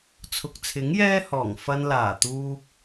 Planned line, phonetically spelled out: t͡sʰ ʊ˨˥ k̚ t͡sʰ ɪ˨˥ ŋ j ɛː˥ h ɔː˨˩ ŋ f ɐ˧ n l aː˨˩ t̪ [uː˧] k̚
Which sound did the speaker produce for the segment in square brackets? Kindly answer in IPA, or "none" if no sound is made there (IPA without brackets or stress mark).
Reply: uː˧